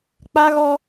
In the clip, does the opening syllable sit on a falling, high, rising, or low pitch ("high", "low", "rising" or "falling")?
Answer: high